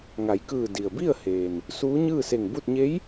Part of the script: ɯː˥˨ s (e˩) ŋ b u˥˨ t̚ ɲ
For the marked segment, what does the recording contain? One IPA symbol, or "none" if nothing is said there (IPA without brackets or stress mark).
e˧˩